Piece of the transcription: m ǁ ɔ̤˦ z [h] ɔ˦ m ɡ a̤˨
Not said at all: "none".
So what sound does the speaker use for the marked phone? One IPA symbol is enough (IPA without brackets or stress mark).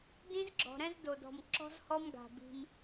h